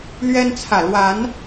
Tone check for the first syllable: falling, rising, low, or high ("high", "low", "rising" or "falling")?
high